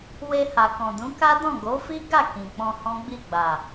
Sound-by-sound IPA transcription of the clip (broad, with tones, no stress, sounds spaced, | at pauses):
w e˧ h a˨ k ɔ̃˨ d ũ˨˦ k a˦ d ɔ̃˦˨ ɡ o˨˦ f i˦ ɡ a˦˨ k ĩ˨ k͡p ɔ̃˧ h ɔ̃˦ ɡ͡b i˦˨ ɡ͡b a˨